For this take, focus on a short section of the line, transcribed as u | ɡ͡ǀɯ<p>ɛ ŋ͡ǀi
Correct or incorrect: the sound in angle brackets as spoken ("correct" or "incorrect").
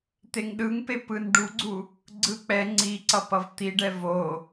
incorrect